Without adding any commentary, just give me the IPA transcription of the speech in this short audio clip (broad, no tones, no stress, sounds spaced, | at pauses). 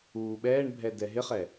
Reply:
uː ɓ ɛː ɳ bʱ ɛ d ɛ ɦ ɪ χ ɛ